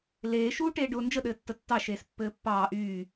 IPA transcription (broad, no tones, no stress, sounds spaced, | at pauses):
l eː ʃ uː ʈ eː ɖ ʊː n d͡ʒ ə ɗ ɘː tː ə tː ɑ ʃ eː s pː ɘː pː ɑː ʔ yː